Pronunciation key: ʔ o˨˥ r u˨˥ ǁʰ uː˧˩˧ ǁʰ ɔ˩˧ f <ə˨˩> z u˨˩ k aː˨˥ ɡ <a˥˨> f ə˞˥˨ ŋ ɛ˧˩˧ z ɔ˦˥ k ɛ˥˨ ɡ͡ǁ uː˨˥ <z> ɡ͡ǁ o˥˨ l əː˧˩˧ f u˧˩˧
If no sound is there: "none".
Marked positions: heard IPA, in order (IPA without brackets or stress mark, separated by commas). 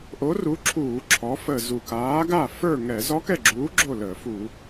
ə˨˩, a˥˨, none